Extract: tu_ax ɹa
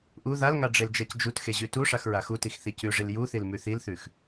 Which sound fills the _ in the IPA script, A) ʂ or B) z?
A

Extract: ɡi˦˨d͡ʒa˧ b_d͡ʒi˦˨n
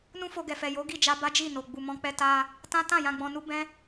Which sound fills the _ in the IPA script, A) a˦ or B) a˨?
A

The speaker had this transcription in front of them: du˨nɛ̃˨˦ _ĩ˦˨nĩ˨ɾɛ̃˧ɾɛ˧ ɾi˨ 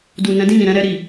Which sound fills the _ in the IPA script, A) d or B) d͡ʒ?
A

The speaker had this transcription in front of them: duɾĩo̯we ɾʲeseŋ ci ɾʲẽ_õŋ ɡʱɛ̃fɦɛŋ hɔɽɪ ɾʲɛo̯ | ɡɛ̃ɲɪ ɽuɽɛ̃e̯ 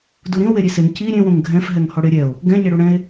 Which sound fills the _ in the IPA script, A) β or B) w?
B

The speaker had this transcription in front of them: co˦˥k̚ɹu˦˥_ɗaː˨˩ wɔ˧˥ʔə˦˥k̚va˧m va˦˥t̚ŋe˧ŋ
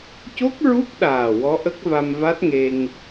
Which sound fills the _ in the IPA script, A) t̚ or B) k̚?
B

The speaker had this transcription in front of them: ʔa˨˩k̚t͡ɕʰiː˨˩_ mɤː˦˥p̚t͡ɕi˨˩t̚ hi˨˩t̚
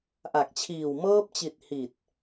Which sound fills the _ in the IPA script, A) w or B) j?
A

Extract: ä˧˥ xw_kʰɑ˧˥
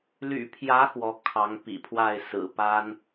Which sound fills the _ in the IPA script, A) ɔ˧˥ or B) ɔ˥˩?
A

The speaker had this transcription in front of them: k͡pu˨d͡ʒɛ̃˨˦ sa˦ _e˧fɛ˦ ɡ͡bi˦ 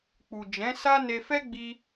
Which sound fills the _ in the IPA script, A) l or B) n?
B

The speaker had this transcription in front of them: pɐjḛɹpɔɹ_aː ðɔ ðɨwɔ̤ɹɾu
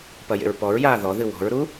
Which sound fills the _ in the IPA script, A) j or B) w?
A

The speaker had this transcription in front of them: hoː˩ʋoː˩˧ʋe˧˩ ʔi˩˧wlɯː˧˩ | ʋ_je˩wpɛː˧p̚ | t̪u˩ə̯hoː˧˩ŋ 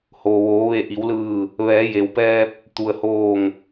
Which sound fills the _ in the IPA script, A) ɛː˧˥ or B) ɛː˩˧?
B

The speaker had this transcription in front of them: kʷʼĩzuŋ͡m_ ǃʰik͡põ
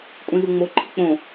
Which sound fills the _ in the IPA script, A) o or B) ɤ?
A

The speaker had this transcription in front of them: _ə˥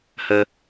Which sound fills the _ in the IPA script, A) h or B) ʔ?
A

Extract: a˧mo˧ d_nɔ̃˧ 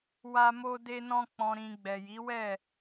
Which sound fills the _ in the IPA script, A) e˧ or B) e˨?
A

